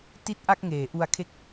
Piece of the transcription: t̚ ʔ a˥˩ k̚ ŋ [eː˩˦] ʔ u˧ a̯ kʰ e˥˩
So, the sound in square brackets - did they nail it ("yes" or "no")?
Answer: yes